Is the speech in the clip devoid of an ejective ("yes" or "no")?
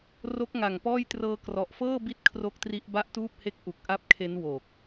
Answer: yes